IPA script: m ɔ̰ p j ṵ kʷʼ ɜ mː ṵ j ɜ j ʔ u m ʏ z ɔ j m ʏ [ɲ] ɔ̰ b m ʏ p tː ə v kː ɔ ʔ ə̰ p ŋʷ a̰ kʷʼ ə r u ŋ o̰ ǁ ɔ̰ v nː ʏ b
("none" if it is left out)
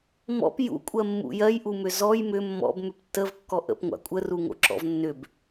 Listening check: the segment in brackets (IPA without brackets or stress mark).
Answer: mː